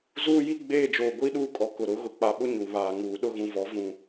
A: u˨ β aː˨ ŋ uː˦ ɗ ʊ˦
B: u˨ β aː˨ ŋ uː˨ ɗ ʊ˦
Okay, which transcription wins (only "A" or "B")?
B